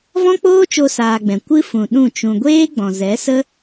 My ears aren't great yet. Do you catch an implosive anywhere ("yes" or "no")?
yes